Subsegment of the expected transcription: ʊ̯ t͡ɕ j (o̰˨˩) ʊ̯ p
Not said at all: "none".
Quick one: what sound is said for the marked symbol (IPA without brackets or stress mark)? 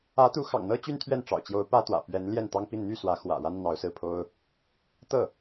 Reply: o˧˥